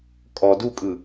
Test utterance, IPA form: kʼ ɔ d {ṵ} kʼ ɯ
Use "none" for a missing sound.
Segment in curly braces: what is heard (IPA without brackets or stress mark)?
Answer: u